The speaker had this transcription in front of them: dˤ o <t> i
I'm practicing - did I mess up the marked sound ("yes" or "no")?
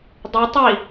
yes